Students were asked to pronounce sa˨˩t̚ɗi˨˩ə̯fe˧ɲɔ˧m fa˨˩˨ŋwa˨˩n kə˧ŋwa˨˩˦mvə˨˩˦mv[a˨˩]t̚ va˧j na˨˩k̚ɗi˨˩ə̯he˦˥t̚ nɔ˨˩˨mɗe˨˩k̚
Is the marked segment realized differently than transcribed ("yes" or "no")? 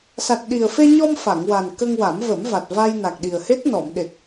no